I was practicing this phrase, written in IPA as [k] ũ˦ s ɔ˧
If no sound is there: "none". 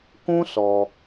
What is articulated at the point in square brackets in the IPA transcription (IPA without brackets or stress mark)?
k